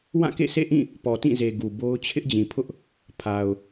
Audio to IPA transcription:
w ã˦˨ k ḛ˦˨ sʰ ḛ˦˨ ʔ ĩ˦˨ | p ɔ˨ t ĩ˦˨ z e˨ ɡ u˨ b o˦ ʊ̯ t͡ɕʰ ɪ˦ ʔ d͡ʑ ĩ˨ pʰ ʊ˦ ʔ | pʰ a˨ ʊ̯

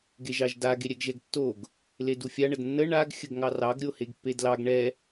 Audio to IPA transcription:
ɡ e ʒ ɑ ʒ d a ɡ e ɾʲ ɛ ɡ ʒ ɛ ɡ tː o ɡ | l e d u fʲ a ɳ ə d nː ə ɳ a ɡ xʲ ə ɡ ŋ ɑ r ɑ ɡ ɾʲ o h e ɡ pː e d l ɑ ɡ ɳ ɛ

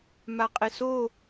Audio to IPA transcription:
m a qʼ ɪ s o

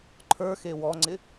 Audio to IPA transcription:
ǃʰ ə˞ x e w ɔ ŋ͡ǀ ɪ

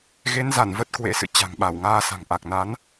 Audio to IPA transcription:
ɣ e˨˦ n z a˧˩ n v ə˦˥ t̚ k w ḛ˧˥ s ɨ̰˧˨ t͡ɕ a̤˨˩ ŋ ɓ a˧˩ w ŋ aː˧ s a̤˨˩ ŋ ʔ a˨˩ k̚ n a˨˦ n

